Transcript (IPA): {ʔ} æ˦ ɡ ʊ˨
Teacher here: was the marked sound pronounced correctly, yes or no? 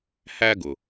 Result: no